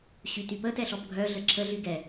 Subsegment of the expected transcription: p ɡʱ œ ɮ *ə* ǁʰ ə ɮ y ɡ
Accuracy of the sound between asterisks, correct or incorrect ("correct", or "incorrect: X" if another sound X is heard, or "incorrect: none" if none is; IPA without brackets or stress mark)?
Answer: correct